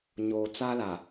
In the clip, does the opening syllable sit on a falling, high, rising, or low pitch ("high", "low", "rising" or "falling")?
low